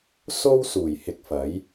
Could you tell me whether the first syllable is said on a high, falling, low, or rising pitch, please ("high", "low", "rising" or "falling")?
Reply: high